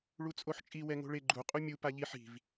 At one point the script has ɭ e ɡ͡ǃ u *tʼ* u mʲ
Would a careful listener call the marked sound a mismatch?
yes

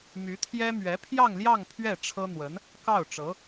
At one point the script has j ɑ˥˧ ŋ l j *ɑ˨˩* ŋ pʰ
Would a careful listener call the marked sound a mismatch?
yes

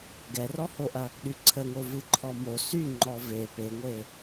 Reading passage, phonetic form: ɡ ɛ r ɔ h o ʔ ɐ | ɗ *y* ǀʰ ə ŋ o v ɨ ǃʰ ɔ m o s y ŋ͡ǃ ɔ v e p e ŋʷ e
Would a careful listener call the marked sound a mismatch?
no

